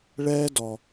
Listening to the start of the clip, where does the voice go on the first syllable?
high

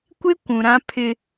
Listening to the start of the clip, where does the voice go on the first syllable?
high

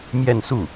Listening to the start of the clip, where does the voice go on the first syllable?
falling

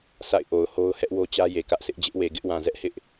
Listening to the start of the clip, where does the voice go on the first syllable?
falling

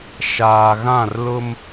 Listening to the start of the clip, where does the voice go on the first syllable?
low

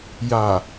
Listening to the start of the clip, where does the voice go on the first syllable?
low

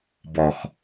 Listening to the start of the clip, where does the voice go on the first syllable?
low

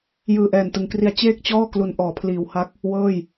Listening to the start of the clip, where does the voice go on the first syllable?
low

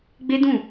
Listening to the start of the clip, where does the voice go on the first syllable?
high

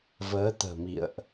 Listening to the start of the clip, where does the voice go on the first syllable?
rising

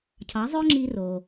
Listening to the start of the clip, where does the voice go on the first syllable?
rising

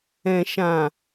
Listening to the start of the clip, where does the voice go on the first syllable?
low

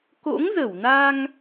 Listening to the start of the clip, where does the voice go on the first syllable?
rising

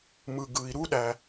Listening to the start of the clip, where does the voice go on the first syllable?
low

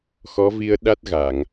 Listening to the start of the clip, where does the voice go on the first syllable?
rising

